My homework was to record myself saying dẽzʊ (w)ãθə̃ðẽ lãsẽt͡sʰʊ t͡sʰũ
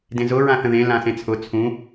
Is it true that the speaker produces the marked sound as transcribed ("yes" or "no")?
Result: no